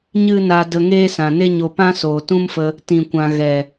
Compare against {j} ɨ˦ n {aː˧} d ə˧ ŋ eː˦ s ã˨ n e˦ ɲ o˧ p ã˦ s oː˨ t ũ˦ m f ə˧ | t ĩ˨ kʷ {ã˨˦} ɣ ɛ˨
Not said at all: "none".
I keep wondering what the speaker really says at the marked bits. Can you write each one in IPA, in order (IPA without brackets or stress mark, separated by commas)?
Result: ɲ, a˧, ã˨